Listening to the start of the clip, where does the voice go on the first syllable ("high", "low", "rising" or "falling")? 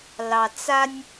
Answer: low